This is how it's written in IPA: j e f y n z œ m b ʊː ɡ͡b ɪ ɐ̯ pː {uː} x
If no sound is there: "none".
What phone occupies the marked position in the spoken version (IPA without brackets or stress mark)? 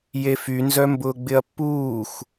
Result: uː